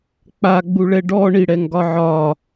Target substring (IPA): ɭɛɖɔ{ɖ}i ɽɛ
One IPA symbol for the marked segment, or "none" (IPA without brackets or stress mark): ɳ